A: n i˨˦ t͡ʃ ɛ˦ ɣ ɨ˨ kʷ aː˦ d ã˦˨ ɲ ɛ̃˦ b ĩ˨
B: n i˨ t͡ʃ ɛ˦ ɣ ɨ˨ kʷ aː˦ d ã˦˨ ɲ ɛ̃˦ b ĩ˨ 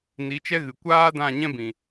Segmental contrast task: A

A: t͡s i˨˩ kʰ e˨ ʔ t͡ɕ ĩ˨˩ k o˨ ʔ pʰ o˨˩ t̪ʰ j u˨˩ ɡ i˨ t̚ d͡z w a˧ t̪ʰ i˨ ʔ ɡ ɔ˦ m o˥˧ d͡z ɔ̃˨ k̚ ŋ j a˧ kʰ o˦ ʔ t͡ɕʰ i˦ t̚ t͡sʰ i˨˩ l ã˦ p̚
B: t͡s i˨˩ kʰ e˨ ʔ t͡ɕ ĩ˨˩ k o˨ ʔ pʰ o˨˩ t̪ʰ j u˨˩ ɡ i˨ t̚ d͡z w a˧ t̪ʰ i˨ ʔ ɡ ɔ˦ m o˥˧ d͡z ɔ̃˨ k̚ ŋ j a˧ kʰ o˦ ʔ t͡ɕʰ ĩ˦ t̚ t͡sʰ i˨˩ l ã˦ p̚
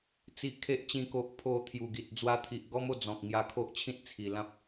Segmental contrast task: B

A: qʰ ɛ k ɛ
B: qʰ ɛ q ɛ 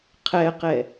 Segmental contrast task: B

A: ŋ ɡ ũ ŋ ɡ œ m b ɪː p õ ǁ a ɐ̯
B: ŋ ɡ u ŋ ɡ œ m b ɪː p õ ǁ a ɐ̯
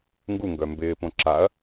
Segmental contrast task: B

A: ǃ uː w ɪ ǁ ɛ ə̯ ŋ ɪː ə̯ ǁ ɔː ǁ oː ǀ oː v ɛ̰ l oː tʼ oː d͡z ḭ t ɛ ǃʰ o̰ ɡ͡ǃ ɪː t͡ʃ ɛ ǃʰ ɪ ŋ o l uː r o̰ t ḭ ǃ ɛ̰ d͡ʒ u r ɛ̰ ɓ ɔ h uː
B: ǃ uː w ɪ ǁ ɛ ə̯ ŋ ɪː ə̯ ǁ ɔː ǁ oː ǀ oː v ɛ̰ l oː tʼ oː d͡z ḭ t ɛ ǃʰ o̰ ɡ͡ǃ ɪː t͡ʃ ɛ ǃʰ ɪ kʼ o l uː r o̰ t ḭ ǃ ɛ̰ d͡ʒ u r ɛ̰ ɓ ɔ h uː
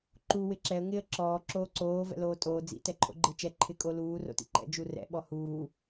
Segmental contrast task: B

